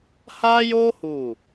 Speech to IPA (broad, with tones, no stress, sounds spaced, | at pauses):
h a˦ j o˦ h u˦˨